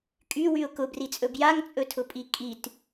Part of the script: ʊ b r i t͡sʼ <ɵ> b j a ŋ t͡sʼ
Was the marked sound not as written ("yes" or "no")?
no